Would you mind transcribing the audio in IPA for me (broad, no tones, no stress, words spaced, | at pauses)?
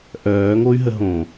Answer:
ʔœːŋoy̯ɦə ɦõ